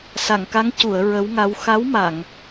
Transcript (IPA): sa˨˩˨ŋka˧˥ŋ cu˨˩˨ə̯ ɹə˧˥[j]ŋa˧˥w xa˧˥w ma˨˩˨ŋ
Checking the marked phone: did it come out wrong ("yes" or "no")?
yes